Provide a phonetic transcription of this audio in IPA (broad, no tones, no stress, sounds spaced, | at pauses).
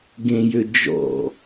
ɡ ẽ j ø d͡ʒ ɔ̰